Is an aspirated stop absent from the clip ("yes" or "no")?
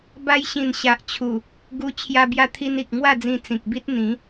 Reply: no